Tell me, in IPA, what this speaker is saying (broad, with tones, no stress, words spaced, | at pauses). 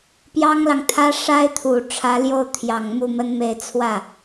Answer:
pjɑ˥ŋlɑ˨ŋt̪ʰä˥ ʂa˥ɪ̯t̪ʰu˨˩ ʈ͡ʂʰä˧˥ljo˥˩ʊ̯t̪ʰjɑ˨˩ŋ mu˥˩mə˥nme˥˧ɪ̯ t͡sʰwä˥˩